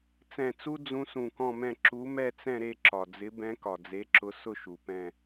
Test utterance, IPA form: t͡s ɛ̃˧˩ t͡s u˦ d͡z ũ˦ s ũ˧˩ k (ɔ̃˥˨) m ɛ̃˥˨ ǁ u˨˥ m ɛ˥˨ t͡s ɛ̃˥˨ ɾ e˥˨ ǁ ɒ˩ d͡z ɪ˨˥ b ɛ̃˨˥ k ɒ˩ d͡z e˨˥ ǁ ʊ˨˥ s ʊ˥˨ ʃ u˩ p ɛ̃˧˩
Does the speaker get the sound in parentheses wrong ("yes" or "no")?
no